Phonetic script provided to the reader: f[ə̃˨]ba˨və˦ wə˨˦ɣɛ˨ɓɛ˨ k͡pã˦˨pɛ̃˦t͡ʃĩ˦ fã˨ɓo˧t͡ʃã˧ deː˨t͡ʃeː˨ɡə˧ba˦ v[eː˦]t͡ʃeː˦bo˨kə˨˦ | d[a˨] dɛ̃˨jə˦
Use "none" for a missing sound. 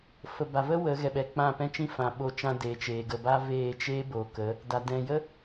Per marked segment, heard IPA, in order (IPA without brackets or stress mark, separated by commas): ə˨, eː˦˨, a˨